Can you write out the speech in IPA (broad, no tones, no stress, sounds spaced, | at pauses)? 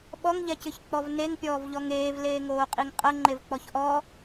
ɓ ɔ ŋ ʎ ɛ c ɨ ç k͡p ɔ v n e ŋ pʲ ɔː v ʎ ɔ ŋ eː v l eː ŋ oː qʼ i ŋ qʼ ɐ ŋ͡ǃ e v k͡p ɔ ç ʔ ɔ